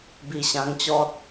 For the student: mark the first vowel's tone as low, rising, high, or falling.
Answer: low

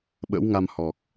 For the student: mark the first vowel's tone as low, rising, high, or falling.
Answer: rising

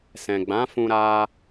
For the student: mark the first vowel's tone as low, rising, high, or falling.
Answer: low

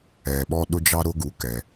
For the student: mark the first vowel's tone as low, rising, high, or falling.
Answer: low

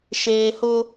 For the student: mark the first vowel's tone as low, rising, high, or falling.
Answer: low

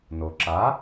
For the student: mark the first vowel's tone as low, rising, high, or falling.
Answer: low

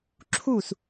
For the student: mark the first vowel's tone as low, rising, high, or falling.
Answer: falling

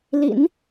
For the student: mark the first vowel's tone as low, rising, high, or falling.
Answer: low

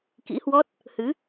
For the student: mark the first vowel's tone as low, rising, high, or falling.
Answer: rising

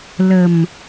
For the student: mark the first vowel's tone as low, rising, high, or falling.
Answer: low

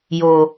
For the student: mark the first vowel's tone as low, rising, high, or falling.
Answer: low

